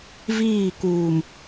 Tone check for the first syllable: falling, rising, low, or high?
falling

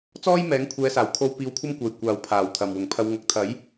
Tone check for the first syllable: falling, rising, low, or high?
high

